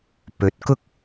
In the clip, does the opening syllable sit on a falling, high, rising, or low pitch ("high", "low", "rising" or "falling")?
rising